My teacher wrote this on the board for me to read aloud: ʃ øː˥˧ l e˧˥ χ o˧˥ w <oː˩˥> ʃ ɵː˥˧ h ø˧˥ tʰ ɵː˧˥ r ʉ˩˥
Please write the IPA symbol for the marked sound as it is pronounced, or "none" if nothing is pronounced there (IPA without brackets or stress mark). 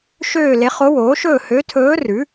oː˩˥